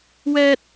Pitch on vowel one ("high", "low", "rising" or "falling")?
low